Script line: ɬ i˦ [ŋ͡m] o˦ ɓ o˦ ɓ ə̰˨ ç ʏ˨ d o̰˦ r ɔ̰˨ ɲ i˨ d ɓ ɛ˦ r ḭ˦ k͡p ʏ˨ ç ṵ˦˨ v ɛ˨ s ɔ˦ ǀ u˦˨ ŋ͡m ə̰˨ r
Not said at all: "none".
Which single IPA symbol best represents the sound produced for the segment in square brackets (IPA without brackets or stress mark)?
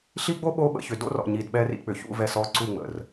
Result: ɡ͡b